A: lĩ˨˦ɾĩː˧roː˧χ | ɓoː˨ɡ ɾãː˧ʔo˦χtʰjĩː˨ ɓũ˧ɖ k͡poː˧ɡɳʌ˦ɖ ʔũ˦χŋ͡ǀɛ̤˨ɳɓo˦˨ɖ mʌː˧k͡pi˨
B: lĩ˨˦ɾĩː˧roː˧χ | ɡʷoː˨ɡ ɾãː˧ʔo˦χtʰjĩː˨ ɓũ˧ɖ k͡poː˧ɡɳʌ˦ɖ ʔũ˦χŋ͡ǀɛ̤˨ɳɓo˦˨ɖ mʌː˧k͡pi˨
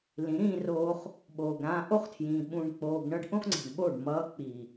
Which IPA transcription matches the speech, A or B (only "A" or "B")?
A